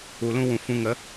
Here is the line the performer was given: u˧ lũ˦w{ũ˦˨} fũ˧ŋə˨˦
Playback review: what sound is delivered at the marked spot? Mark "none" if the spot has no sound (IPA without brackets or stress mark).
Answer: ũ˨